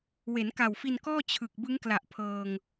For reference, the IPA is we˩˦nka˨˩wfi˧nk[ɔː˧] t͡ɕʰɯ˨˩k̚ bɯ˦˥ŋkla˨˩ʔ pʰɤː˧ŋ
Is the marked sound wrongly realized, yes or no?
yes